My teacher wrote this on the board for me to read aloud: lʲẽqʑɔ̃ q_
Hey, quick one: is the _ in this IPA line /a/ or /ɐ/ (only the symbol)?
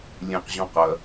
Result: ɐ